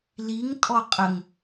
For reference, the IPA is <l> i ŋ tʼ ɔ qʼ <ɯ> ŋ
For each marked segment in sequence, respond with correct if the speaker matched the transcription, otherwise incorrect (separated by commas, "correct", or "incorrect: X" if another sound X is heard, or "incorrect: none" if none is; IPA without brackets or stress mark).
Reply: correct, incorrect: ə